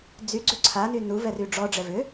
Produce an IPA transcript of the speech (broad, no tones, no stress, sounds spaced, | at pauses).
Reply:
d͡z y ɡ͡ǀ ʏ ǀʰ a n y n u v ɛ r y ɖ͡ʐ ɔ ɖ͡ʐ ɛ v ʏ